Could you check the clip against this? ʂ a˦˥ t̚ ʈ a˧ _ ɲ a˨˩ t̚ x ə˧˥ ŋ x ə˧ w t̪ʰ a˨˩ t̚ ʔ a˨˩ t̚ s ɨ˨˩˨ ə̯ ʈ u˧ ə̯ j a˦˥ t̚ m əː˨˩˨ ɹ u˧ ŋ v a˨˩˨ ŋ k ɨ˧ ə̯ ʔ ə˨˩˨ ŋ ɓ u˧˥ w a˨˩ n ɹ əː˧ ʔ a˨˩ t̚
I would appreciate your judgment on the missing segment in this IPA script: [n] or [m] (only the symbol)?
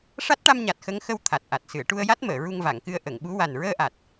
m